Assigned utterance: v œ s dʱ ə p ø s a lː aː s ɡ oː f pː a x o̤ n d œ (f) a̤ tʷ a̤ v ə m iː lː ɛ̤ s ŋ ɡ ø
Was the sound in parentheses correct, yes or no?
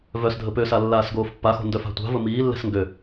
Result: yes